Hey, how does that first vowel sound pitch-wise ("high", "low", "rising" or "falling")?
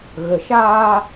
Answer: low